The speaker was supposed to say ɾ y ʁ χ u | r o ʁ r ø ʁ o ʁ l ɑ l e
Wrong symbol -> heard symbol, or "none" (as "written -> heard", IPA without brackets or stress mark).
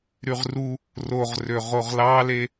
χ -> r